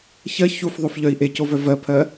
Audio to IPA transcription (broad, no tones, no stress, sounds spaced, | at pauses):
ç ɜ ç u f ðˤ o f ʎ œ i̯ ʔ e c o v œ v ɜ pʰ ɜ